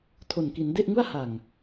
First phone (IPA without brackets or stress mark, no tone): tʰ